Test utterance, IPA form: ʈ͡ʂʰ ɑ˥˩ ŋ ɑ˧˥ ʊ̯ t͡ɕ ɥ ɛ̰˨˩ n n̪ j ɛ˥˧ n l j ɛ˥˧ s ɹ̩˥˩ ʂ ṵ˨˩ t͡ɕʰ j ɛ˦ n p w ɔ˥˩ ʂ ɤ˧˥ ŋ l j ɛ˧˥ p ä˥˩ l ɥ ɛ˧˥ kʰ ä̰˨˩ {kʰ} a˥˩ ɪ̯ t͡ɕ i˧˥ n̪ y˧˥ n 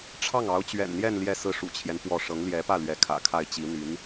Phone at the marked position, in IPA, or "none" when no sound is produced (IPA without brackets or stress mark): kʰ